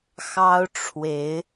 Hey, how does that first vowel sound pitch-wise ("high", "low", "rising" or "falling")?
high